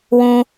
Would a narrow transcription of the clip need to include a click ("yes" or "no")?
no